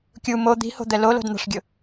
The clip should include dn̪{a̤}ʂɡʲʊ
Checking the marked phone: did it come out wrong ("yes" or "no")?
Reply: no